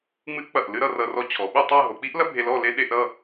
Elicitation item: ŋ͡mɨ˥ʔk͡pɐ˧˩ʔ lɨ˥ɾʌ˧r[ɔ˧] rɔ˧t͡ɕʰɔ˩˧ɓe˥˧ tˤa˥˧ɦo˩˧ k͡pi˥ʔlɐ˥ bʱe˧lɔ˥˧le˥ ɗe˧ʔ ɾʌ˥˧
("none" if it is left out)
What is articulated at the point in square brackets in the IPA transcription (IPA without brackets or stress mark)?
ʌ˧